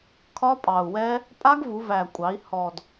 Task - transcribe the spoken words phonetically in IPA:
kʰɒ˦˥pʼɑ˨˩u̯wɛ˦˥ | pʼa˦˥ɡvu˩˧ væ˨˩kʷʼɑ˩˧i̯ hɔ˨˩d

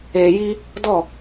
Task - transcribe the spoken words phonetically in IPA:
eː˨ji˧ | dɔ˦˨

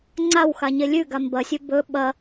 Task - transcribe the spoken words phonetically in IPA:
ŋ͡ǀaw xaɲelʲʉ ɡambɐsʲɵ bɵ ɓɐ

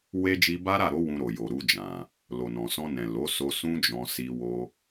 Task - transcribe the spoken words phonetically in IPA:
we˦ d͡ʒi˧ba˦ɾa˦˨ɾo˨˦ wũ˧ɾo˨jo˨ɾu˧ d͡ʒã˨ | lo˨nɔ̃˨sɔ̃˧nɛ̃˨ lo˨˦so˧ sũ˦d͡ʒɔ̃˧ si˧wo˧

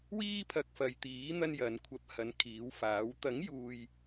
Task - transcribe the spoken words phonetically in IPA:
wiː˥pʰɐ˧k̚fɐ˨˧j t̪iː˨˥ n̪ɐ˥njɐ˨˧nkʷʰɐ˧p̚hɐ˨˧n kʰiː˨˥wfaː˨˥w t̪ɐ˨˥ŋjuː˨j

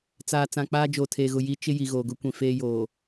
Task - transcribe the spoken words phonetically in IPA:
t͡saː˨ t͡sã˨k͡paː˦ d͡ʒoː˨tʰeː˨ɣʊ˨ ji˦ t͡ʃɪ˦ ji˨ɣoː˨ɡʊ˦kʷĩ˨ feː˦joː˨

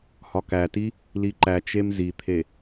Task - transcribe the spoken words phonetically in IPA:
hɒkæti | liǃæt͡ʃem zit̪ʰe

